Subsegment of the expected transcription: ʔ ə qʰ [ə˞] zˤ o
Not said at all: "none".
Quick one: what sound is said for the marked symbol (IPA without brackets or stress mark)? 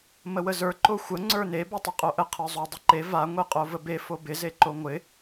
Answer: ə˞